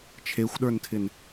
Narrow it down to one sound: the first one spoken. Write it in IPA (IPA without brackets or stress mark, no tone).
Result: t͡ʃʰ